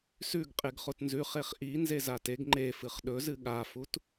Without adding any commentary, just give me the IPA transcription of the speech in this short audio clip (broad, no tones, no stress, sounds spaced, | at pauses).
s ʉ ɡ qʼ e ɡ χ o t n z ʉ χ e χ ʔ i n z e z a t e ɡ ŋ͡ǃ e f ɨ χ ɗ ɵ z ɨ ɠ a f u t